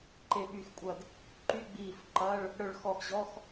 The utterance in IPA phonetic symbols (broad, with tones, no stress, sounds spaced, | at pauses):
ǃ e˧˩ ɓ y˧˩ x kʷʼ ɐ˧˩ d | ǃ y˧˥˧ ɡ͡b iː˧˩ f ǃ ɐ˧˥˧ ɭ | ɽ œ˧˩ ɭ x ɔ˧˩ x ʑ ɔ˧˥˧ x